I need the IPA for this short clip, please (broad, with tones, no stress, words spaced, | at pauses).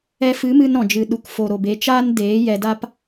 ɛ˧fɨ˨˦mɨ˧n ɾɔ̃˨d͡ʒɨ˨ ɗu˨kfo˨ɾo˨be˨˦ t͡ʃaː˦ndeː˨˦ jɛ˧da˦p